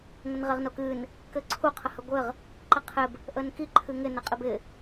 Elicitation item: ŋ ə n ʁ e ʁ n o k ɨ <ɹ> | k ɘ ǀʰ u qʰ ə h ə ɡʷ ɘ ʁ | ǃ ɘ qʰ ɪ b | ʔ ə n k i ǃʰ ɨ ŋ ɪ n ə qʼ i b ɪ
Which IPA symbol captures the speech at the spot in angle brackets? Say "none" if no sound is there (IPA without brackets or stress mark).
n